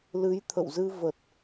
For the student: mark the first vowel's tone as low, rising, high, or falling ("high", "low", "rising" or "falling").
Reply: rising